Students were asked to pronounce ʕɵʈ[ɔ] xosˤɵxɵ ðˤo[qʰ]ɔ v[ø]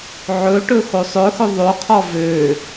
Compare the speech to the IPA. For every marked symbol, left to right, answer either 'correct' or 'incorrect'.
incorrect: ɵ, correct, correct

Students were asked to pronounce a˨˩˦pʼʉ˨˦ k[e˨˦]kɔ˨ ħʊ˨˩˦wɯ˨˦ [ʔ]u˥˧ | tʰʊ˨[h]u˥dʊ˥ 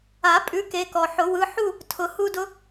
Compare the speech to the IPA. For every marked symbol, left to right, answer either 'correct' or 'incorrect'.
correct, incorrect: ħ, correct

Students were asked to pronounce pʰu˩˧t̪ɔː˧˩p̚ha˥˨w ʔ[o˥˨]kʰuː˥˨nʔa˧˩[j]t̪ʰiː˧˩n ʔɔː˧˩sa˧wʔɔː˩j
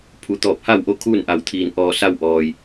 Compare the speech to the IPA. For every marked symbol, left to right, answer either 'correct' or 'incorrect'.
correct, incorrect: w

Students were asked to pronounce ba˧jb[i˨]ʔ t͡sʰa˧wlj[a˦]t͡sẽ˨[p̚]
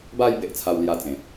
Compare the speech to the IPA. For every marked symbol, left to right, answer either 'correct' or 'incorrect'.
incorrect: e˨, incorrect: a˧, correct

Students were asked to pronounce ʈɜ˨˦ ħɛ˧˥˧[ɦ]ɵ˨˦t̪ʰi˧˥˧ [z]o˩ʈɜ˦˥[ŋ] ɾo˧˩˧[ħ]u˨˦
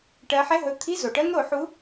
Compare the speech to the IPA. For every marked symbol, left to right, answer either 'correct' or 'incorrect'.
correct, correct, correct, correct

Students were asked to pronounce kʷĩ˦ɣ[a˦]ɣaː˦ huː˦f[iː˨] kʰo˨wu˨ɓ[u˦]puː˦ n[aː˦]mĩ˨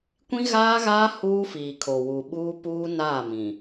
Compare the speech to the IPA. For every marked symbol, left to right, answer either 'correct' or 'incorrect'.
incorrect: aː˦, correct, incorrect: uː˦, incorrect: aː˦˨

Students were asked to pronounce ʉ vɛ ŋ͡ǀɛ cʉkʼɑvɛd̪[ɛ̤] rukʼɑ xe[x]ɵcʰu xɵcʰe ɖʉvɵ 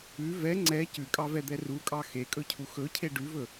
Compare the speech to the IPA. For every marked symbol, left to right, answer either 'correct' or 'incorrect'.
incorrect: ɛ, incorrect: kʼ

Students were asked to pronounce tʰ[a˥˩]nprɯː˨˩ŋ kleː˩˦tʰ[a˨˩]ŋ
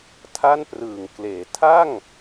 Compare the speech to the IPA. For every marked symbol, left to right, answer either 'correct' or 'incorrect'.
correct, incorrect: a˥˩

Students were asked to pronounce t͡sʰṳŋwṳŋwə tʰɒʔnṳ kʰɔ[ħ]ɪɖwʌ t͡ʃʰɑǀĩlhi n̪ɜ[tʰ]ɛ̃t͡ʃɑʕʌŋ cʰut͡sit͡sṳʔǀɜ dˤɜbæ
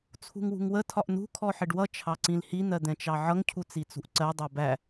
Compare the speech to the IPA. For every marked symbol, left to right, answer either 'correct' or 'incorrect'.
correct, incorrect: d̪

